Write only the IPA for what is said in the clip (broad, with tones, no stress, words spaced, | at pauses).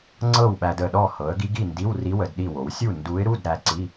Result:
ŋ͡ǀɤ˥˨wɓæ˧də˨˩ɗɔ˥˨ hɤ˩˧ə̯ ɡi˧˥ɡi˥˨ndi˧˥˧wri˧˥ wə˩˧dɗi˥˨ wo˩˧wsʲu˥˨ ndu˧˥ɪ̯ɾu˧˥˧d ɾæ˧ǀi˧˥˧